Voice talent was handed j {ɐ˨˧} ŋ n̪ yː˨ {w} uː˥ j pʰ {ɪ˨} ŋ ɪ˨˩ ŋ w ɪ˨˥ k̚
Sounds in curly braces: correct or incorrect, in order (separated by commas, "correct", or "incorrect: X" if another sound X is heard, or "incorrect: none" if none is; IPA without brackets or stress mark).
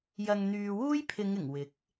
incorrect: ɐ˨, correct, incorrect: ɪ˨˧